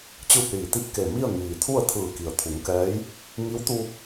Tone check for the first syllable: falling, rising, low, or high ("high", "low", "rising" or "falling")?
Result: falling